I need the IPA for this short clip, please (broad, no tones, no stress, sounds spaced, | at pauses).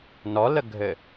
n ɔ l ə ɡʱ ɘ